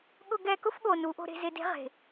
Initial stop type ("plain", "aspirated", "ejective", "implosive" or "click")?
implosive